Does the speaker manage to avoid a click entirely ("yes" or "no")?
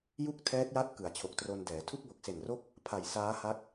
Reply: yes